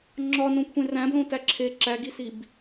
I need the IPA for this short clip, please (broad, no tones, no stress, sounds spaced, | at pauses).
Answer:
ŋ͡ǁ ɒ n õ kʷʰ ẽ r æ̃ b l õ t æ ǁʰ e ǁ æ ɡ i s i b